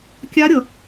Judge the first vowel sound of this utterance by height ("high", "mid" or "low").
low